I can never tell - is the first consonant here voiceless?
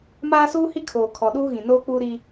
no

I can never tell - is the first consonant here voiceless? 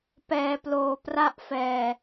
yes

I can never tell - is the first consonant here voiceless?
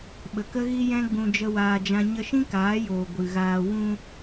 no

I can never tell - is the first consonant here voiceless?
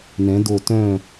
no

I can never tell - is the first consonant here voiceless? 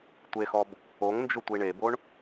yes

